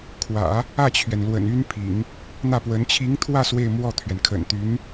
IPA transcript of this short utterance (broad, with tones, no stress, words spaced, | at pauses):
kʰwä̰˨˩˦ | ä˥˩t͡ɕʰɥɛ˩nlwə̰˨˩n y˥npʰḭ˨˩˦ŋ | n̪ä˥˩pwə˧˥n t͡ɕʰi˧˥ŋt̪ʰwä˥˧ swe˥˧ɪ̯mwɔ˥˩t̪ʰɥɛ˩n kʰə̰˨˩nt̪y˧˥n